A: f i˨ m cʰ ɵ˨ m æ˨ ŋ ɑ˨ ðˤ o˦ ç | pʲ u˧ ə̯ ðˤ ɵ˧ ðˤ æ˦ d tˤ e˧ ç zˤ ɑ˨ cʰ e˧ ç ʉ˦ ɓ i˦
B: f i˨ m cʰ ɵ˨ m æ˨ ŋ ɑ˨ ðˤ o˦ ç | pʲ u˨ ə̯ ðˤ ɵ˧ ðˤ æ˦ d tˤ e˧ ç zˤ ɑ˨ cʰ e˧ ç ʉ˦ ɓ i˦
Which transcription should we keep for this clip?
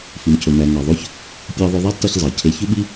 A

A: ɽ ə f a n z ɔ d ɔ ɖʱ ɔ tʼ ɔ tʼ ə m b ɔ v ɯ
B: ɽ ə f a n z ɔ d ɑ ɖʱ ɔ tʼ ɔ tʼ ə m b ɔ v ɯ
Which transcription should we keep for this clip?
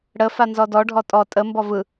A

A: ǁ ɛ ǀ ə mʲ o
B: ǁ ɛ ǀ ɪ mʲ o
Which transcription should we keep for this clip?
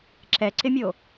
B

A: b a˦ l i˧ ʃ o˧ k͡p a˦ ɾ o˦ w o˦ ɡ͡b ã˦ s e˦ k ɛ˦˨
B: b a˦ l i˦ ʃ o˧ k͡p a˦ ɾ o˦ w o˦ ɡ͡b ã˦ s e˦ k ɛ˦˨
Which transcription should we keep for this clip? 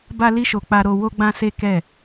B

